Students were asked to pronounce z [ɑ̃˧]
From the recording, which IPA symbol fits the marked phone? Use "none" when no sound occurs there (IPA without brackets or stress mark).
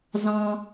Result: ɑ̃˧